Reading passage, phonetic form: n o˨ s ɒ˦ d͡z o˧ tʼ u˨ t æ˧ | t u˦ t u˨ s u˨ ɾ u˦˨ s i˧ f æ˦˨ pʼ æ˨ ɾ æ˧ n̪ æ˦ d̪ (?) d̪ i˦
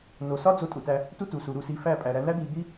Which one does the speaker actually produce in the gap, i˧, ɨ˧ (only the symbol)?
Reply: i˧